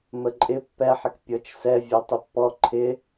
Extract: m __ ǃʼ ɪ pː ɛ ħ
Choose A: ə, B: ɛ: A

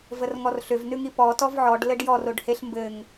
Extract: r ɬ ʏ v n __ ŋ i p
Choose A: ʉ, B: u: A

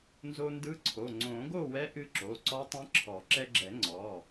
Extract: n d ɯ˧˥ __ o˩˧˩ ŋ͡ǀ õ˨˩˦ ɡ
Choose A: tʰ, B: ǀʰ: B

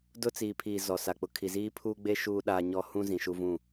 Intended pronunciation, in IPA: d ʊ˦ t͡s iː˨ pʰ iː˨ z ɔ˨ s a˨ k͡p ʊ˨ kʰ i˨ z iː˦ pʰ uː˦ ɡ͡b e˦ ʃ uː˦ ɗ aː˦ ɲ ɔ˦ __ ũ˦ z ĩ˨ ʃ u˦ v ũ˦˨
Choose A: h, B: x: A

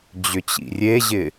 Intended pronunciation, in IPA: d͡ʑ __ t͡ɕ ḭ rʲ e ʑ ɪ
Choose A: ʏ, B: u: A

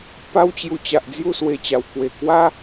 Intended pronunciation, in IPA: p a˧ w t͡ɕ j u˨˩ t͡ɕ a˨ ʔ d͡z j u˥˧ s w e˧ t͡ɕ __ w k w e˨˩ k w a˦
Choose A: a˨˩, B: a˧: A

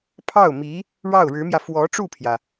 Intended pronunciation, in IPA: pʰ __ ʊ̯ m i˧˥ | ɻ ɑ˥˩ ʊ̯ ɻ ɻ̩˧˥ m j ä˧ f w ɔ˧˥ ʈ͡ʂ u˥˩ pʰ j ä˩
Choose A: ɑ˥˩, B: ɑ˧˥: A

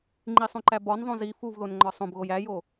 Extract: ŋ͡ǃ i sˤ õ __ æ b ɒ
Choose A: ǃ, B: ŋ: A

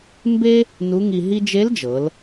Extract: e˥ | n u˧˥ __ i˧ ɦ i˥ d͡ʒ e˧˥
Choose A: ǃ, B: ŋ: B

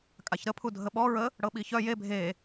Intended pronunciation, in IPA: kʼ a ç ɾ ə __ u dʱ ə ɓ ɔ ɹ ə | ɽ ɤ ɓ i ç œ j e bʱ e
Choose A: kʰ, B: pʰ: B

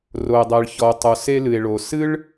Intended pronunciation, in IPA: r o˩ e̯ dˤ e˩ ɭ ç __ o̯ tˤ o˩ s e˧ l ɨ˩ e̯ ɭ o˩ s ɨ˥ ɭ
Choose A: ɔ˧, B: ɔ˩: B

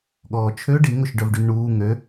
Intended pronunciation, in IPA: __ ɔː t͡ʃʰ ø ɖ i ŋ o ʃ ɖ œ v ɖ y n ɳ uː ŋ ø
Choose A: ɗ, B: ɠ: B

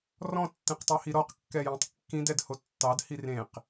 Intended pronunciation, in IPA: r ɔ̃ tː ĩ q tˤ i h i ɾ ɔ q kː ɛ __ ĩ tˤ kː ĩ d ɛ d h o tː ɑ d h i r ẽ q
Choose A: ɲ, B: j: B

